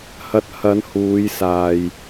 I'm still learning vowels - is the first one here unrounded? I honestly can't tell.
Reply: yes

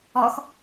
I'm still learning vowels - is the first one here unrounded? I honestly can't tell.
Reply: no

